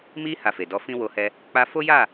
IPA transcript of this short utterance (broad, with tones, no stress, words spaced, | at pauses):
mi˦ ha˧fe˨dɔ˧fĩ˦ wo˧hɛ˧ | k͡pa˦ fo˦ja˦˨